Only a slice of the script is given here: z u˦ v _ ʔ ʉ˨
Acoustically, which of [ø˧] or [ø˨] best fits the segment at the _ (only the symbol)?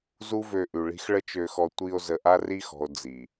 ø˧